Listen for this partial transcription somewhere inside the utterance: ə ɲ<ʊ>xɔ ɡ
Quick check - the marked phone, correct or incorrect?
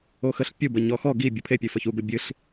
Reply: incorrect